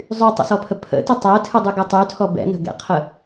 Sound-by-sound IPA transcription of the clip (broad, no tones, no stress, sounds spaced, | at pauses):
zˤ y tˤ ə̰ s ɔ pʰ ə pʰ ə̰ t ɨ tˤ ɛ tʰ ɨ dˤ y ɡ ɨ tˤ y tʰ ɔ b ɛ̰ n ə̤ ɡ ɛ̰ qʰ ə